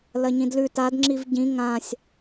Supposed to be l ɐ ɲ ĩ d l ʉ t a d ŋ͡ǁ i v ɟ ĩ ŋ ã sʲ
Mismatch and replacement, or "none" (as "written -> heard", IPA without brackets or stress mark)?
none